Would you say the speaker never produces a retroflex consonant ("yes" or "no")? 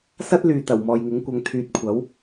yes